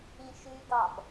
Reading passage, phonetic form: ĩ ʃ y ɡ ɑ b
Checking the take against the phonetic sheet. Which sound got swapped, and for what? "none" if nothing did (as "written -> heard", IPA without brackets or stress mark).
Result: none